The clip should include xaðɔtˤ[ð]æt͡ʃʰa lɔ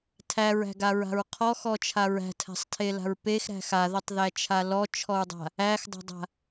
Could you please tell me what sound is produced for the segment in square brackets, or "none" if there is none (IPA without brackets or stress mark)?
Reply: ð